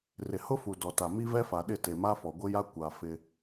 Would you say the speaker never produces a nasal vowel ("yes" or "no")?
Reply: yes